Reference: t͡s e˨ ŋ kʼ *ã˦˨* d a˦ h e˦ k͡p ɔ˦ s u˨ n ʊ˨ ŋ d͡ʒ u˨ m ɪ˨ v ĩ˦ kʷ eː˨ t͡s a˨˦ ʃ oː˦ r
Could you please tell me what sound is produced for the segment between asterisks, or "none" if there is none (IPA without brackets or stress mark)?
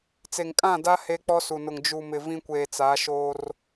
ã˦˨